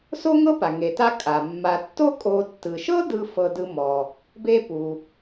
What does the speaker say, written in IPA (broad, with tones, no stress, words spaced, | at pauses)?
so˥ŋɤ˥pa˩ ŋe˩ta˦ kʼa˩mːa˨ tːo˥ kʼo˨tːɯ˩ʃɤ˥ dɯ˦ fɤ˦dɯ˦mɔ˩ | be˥pu˩